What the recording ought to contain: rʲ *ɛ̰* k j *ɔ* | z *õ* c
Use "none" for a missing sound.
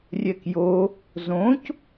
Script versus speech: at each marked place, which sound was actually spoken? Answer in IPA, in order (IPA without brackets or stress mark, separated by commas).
ɛ, o, õ